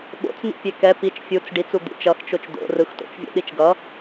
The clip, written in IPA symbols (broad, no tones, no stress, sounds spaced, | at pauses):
ɓ o̰ t͡s n̪ ḭ pʲ e k ɛ p i t͡ʃ fʲ u t͡s ɖ i t͡s u d̪ ṵ t͡ʃ ʌ x t͡ʃ o t͡ʃ d̪ o̰ r ɯ x t o̰ t͡ʃ vʲ o̰ ɗ i t͡ʃ ɡ ʌ